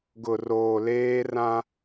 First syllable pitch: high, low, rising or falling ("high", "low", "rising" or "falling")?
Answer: low